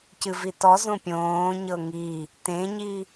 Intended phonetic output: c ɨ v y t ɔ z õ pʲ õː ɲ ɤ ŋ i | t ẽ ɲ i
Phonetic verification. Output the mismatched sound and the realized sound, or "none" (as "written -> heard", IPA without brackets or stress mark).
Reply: y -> i